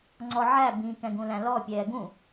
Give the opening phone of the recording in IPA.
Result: ŋ͡ǀ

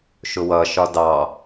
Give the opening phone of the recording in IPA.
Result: ʃ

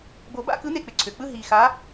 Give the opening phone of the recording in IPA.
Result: b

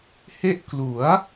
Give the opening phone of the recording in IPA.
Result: h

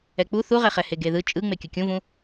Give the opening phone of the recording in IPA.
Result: ɛ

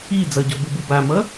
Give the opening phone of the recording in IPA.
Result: i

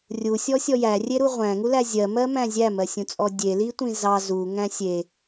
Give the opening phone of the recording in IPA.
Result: rʲ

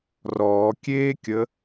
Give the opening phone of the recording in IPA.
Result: r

